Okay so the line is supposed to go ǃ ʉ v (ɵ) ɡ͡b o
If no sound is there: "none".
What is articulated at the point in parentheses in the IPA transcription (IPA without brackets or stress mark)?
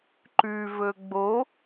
ɵ